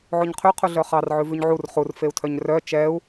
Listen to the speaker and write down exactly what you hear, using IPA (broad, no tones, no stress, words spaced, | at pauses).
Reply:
ʕoɲqʰy qʰuɮœχɑr ʕʉvʉɲʕur χur feu̯tʰœɲrœ t͡ʃɛu̯